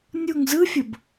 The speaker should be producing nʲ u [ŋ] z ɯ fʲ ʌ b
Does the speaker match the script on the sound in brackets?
yes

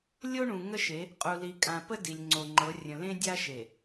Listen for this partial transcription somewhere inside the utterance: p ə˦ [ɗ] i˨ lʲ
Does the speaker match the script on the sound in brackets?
no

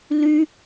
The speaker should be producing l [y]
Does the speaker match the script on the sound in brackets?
yes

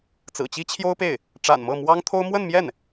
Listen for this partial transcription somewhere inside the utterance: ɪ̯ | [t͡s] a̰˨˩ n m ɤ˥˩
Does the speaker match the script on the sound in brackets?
no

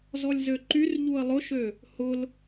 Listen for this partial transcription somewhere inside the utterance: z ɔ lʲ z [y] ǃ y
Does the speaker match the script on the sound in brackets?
no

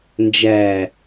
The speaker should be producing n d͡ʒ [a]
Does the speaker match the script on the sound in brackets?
no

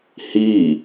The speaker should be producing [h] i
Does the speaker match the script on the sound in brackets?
yes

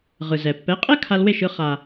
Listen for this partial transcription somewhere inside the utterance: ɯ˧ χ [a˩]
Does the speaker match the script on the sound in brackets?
yes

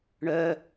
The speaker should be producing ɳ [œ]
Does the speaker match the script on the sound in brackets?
yes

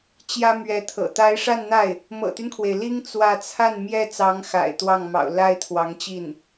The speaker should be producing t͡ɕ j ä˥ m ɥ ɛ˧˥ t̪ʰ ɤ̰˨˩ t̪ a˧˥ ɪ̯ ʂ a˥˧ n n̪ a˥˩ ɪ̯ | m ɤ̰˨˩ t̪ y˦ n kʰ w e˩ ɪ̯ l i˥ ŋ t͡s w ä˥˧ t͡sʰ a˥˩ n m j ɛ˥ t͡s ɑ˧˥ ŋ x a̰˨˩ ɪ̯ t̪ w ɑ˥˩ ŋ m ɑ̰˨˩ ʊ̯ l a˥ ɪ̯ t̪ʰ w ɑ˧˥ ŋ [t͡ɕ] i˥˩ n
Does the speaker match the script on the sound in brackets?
yes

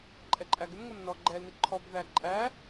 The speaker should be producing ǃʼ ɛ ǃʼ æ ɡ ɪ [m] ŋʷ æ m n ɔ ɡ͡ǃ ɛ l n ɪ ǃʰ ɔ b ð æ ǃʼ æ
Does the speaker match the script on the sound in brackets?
yes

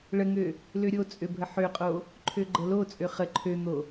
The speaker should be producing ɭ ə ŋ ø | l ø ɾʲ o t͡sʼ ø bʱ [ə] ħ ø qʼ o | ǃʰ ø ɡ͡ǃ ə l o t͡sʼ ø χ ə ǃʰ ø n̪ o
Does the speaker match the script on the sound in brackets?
yes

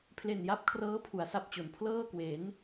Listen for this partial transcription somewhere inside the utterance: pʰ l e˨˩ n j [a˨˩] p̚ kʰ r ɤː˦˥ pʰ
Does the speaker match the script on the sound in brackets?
no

